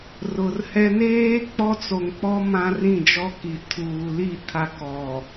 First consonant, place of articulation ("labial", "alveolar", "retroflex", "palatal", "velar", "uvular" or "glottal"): alveolar